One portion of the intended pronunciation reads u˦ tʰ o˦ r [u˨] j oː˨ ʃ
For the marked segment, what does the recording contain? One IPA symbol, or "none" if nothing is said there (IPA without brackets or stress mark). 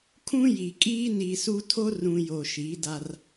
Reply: ũ˨